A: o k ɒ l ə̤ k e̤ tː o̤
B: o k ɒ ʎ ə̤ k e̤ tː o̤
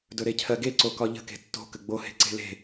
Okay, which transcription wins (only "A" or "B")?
B